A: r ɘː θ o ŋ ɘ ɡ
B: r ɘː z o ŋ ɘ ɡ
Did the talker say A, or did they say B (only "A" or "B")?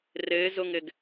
B